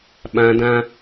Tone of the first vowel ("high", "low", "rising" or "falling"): high